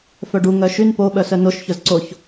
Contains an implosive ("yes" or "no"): yes